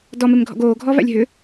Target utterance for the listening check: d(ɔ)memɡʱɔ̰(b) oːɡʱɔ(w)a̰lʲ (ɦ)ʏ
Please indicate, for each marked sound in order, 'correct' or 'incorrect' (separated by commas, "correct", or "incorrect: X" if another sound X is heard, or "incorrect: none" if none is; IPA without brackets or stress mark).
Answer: correct, incorrect: ɡ, incorrect: v, correct